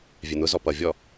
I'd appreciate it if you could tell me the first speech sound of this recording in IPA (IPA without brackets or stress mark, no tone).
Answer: vʲ